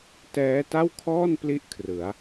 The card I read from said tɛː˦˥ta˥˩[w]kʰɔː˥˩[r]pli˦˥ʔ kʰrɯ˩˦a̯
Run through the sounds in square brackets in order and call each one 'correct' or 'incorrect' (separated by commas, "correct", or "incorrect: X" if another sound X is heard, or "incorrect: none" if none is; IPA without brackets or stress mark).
correct, incorrect: n